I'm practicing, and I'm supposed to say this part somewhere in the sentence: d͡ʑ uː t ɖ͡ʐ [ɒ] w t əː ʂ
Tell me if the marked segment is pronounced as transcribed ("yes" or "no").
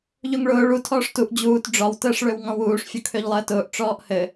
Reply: yes